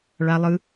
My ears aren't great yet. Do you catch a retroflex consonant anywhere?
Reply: yes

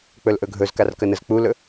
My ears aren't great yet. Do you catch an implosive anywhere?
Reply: no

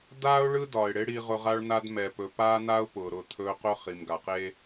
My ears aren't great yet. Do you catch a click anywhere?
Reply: no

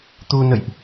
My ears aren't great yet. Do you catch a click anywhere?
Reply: no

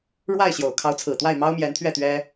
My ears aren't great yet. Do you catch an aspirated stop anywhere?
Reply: yes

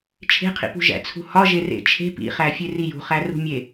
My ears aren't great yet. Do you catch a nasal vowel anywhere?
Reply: no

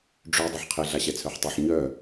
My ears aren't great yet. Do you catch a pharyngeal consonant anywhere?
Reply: yes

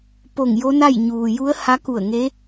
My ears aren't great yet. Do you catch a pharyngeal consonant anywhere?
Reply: no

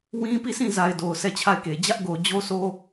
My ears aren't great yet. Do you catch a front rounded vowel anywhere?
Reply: no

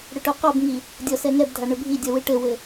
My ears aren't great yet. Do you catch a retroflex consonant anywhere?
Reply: yes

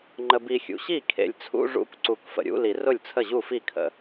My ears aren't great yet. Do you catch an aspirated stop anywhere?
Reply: yes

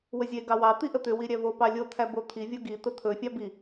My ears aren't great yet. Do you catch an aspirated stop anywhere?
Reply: yes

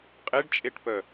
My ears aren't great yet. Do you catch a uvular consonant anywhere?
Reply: yes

